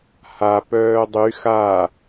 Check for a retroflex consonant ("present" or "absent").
absent